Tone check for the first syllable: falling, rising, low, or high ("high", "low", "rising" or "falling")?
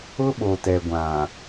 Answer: high